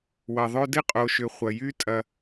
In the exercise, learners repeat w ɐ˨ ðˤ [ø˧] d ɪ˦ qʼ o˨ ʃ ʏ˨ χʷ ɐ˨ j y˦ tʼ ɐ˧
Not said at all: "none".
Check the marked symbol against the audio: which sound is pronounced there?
ø˧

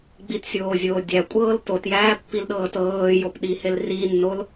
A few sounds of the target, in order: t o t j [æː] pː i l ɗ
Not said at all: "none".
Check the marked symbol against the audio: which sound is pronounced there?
æː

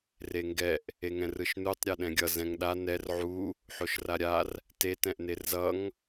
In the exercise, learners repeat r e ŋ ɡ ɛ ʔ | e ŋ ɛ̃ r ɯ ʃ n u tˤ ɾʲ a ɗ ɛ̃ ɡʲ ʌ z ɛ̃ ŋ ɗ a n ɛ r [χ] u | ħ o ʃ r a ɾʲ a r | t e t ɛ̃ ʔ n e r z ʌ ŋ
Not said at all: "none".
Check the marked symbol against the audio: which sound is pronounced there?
ʕ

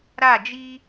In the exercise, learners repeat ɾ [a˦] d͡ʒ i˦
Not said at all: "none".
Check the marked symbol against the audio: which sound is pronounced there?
a˦˨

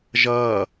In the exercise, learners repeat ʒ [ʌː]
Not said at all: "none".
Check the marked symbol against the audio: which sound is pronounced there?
ʌː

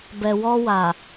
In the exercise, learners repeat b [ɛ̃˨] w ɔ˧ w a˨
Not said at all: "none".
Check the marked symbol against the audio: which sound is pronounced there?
ɛ˨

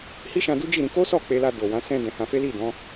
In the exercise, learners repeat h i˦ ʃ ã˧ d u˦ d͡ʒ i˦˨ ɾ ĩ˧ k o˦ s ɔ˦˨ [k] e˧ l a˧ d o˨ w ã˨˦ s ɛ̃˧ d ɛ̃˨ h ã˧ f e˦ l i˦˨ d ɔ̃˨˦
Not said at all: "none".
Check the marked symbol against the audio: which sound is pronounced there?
k͡p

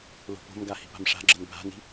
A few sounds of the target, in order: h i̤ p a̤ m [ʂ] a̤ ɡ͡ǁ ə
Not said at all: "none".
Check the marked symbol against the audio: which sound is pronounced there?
ʂ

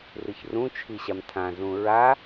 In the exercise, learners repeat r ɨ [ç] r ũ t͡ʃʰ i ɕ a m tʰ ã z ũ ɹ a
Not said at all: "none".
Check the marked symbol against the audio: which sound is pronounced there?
ç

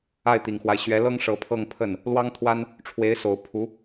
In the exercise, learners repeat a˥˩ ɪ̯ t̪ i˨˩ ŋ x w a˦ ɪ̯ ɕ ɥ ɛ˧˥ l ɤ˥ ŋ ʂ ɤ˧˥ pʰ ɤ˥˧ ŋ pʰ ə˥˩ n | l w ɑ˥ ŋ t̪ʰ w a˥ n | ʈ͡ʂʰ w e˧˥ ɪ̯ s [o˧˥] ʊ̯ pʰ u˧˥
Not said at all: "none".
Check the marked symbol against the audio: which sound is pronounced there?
o˨˩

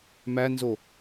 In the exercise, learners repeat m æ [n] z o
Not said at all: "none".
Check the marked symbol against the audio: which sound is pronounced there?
n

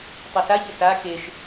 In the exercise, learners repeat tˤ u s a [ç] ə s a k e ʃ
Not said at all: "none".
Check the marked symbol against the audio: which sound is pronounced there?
ç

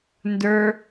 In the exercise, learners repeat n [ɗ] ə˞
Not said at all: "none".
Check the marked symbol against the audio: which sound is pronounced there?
d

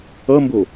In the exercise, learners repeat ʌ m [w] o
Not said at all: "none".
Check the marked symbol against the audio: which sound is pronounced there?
b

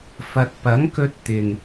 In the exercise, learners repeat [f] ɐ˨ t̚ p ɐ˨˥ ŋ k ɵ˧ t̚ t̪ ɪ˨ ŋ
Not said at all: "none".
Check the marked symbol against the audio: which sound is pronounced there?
f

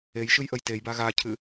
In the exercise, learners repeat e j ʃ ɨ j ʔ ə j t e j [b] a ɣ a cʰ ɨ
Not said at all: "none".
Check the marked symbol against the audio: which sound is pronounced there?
b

